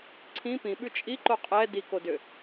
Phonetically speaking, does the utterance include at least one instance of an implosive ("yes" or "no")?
yes